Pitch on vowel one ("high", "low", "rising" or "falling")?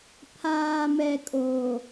low